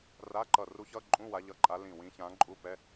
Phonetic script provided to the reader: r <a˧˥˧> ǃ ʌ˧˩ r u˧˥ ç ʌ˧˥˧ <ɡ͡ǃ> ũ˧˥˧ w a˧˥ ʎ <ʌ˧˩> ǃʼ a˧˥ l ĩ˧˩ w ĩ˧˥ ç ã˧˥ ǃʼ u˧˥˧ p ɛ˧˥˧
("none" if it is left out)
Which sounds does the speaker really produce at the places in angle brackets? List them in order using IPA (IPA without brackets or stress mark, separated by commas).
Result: a˧˥˧, ǃʼ, ʌ˧˥˧